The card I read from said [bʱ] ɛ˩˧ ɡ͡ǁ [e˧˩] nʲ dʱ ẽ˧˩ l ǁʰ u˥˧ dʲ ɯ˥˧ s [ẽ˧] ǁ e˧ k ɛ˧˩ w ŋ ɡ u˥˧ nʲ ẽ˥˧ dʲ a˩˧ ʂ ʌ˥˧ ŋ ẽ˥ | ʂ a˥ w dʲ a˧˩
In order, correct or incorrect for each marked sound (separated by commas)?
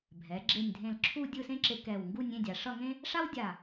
correct, correct, incorrect